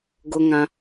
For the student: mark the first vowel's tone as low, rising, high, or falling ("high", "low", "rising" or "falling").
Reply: high